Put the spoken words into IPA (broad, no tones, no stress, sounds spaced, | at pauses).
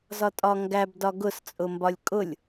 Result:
z ɒ tʼ ɒ ŋ ɡ æ b d ɒ ɡ ʊ s t͡sʼ ʊ m b ɒ lʲ kʼ ʊ lʲ